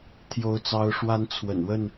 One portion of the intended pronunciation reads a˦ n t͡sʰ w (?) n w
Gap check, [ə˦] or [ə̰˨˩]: ə̰˨˩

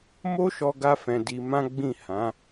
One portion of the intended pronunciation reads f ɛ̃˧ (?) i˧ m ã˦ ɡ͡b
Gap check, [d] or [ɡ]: d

